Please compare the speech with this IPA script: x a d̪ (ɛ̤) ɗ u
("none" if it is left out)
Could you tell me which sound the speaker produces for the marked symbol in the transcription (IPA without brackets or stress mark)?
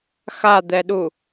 ɛ